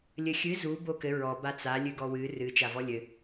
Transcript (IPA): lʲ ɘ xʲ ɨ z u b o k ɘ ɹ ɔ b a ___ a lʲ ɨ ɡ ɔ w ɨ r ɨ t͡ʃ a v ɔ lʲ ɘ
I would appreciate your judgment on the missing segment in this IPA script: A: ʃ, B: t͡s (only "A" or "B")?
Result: B